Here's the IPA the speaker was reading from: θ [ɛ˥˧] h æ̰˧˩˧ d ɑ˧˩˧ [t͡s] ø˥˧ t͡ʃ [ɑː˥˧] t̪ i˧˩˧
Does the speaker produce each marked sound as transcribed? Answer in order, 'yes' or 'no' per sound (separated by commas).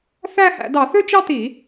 no, no, no